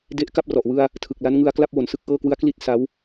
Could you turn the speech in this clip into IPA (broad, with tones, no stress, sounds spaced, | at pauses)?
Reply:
d e˦˥ ʔ k a˥˩ p̚ r ɔ˨˩ ʔ w ɯ˧ a̯ | tʰ ɯ˨˩ k̚ l a˦˥ n ŋ ɯ˧ a̯ k l a˥˩ p̚ w o˩˦ n s ɯ˥˩ k̚ ʔ ɤː˥˩ k w ɯ˦˥ a̯ k l i˥˩ t̚ s a˦˥ w